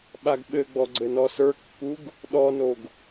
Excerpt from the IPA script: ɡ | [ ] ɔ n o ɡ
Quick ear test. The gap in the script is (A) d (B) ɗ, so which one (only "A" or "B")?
B